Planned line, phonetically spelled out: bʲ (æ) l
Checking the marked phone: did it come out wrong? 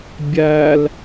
no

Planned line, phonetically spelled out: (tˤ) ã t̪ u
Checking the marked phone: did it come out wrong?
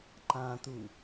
yes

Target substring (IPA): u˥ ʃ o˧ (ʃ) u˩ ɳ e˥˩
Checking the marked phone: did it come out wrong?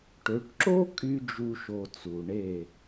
yes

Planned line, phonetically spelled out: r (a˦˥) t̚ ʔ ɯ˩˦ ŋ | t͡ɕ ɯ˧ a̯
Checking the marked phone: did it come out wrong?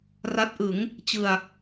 no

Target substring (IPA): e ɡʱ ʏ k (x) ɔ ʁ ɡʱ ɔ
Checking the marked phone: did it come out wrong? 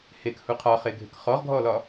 yes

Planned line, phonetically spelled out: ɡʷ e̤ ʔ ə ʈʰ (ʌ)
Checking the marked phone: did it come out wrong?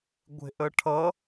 no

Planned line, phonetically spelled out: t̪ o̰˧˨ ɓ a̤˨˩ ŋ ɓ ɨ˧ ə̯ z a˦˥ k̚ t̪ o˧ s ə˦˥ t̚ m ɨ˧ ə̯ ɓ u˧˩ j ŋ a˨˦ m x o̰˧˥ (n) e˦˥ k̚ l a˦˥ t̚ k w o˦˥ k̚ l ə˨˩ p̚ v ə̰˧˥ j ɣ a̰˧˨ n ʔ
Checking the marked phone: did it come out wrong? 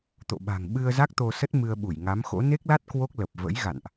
no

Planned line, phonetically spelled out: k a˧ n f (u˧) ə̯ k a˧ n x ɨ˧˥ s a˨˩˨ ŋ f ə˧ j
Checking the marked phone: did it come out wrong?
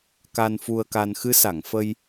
no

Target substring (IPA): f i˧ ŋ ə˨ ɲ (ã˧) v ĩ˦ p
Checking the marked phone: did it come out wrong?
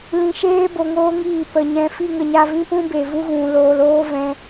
yes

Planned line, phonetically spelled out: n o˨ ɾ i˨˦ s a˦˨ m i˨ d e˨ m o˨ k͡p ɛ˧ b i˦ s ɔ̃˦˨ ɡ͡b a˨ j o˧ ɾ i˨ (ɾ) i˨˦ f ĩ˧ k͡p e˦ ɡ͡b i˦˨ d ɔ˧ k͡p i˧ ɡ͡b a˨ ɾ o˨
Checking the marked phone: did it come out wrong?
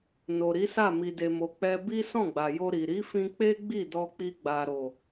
no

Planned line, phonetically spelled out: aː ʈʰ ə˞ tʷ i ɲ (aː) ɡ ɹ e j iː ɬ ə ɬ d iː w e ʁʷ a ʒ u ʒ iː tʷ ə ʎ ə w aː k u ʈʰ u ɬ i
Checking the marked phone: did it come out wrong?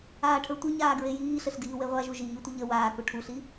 no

